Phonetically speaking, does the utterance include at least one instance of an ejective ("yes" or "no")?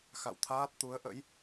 no